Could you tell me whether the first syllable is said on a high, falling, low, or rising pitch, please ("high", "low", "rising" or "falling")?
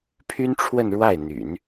high